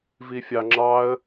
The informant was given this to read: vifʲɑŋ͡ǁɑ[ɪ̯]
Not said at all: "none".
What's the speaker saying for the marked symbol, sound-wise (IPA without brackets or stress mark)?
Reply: ə̯